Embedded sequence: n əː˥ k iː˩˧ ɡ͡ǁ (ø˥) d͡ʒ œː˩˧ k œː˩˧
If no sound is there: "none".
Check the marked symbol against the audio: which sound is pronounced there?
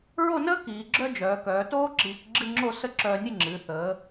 œ˥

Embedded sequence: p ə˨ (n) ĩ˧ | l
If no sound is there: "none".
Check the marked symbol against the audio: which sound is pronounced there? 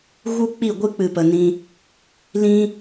n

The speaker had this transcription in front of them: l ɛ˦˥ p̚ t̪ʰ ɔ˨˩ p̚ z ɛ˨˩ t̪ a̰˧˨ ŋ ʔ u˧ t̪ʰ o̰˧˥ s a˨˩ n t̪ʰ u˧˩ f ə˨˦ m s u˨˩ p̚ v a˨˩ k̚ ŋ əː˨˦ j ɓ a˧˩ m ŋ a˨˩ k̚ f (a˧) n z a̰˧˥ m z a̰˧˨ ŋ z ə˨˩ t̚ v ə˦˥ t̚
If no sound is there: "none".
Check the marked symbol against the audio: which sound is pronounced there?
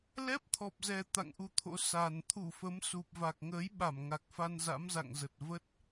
a˧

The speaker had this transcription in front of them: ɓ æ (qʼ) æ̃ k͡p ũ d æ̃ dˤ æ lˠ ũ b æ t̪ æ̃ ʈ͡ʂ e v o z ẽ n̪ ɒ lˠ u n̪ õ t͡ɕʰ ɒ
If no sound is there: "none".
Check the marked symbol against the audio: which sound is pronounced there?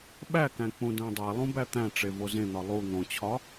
k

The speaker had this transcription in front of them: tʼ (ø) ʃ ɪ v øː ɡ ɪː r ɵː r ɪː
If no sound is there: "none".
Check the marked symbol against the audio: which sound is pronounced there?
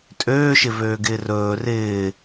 øː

